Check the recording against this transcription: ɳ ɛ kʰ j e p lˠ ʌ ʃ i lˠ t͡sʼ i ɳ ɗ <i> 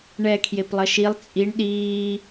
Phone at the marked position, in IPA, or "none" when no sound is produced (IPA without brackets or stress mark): iː